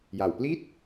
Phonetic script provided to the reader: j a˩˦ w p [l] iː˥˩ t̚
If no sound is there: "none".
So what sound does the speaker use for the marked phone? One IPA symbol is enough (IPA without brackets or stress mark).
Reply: l